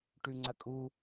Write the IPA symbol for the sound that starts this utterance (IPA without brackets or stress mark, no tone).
ʈ